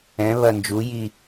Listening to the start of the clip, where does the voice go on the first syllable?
rising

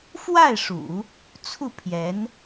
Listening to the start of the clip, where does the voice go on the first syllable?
falling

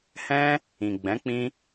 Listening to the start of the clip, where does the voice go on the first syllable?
high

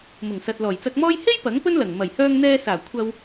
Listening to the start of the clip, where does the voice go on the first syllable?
low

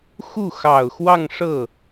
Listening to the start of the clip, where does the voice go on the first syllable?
falling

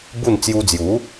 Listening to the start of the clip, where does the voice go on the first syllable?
falling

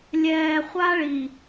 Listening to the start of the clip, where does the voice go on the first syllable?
low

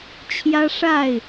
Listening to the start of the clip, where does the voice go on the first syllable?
high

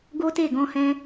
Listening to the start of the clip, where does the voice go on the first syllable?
high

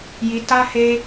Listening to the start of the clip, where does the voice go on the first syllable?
low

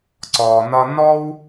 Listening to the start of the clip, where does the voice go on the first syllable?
low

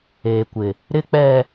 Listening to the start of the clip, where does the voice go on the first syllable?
high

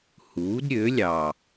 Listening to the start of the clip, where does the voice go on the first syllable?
rising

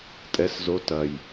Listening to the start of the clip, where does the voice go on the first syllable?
rising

